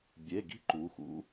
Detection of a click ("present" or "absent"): present